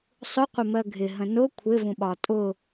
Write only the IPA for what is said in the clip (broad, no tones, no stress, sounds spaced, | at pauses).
sˤ ʊ qʷ ə m ɜ ɡʱ ɪ ɦ ə̃ n ʊ kʷʰ ɪ v ũ ɓ ɒ tʼ ʊ